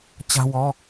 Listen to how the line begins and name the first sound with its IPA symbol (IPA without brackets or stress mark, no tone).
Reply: t͡ɕ